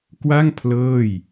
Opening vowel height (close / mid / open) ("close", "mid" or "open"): open